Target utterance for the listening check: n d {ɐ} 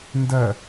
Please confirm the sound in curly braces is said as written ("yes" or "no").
yes